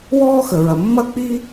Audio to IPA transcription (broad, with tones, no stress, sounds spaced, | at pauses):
w ɔː˥ x ə˩ ɹ ɐ˩ mː ɐ˥ k͡p iː˥